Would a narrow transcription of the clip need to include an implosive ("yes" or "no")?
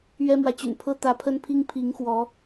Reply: no